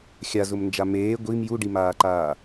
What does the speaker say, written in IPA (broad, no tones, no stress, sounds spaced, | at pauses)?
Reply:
xʲ a z ʊ m n d͡ʒ a m eː ɡʷ i m j u ɖ i m aː ǃ aː